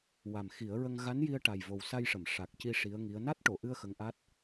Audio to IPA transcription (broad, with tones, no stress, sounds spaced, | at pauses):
w a˨˩ m x i˨˩˦ ə̯ ɹ ə˧ ŋ ɣ a˧˥ n j i˧ ə̯ ʈ a˨˩ j v o˨˩ w s a˧ j ʂ ə˨˩˨ m ʂ a˨˩ k̚ c i˧ ʂ i˧˥ ə̯ ŋ i˧˥ ə̯ n a˦˥ t̚ ʈ o˨˩˨ ʔ ɨ˧ ə̯ x ə˧˥ ŋ ʔ a˦˥ t̚